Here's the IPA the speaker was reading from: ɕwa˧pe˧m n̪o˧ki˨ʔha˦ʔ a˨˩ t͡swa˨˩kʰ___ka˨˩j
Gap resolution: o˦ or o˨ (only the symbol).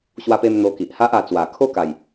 o˦